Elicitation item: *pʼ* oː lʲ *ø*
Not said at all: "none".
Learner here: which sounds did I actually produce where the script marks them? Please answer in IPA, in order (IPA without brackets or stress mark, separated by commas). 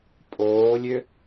pʼ, ø